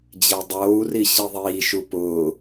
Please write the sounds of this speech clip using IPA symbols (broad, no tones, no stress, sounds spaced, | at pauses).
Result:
d͡ʑ e dˤ oː u̯ r i ɕ i ðˤ iː ʃ u p ʊː